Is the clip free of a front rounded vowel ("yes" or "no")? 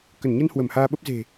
yes